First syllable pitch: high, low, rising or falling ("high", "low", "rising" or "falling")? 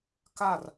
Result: falling